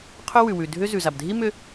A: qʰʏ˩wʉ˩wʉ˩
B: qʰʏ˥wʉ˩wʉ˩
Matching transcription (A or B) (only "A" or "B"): B